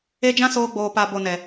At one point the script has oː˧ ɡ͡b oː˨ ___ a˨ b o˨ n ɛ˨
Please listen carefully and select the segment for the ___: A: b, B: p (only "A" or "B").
B